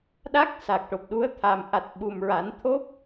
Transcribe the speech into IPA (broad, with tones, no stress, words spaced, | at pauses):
ɗa˦˥k̚ sa˨˩k̚ʈo˨˩p̚ɗu˧˥ə̯ t̪ʰa˨˩m ʔa˨˩t̚ ɓu˨˩mɹa˨˩˦n t̪ʰo˦˥p̚